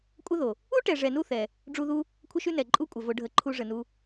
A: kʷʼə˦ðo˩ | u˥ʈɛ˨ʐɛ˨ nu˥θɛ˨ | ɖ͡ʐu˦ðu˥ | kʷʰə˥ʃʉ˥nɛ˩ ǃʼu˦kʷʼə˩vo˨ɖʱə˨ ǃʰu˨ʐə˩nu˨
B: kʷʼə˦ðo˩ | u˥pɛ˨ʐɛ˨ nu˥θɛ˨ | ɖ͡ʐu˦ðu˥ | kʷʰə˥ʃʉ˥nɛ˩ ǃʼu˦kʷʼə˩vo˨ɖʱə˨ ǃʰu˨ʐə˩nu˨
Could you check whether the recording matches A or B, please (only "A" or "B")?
A